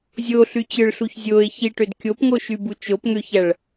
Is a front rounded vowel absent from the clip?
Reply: no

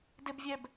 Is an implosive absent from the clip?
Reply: yes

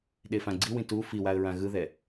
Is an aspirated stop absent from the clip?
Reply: yes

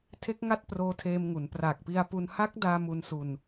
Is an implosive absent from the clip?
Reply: yes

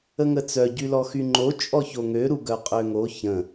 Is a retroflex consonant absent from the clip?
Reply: yes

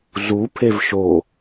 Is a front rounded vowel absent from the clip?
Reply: yes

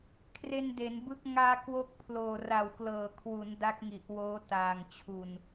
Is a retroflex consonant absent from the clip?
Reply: yes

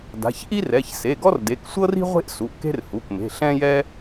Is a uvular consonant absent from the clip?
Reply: no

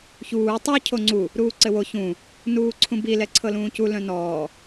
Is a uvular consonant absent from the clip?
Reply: yes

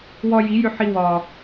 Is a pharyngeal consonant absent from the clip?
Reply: no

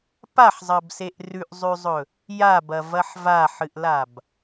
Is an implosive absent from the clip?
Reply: yes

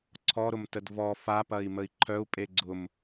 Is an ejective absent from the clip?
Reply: no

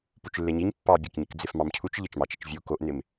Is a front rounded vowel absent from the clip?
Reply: yes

